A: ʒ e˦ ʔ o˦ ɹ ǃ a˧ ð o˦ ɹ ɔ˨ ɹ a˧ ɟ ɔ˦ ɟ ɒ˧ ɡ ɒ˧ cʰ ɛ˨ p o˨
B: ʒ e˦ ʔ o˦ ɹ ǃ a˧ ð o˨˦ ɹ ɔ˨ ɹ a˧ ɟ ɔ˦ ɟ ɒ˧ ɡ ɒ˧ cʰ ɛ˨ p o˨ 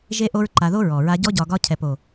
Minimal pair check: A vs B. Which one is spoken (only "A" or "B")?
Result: A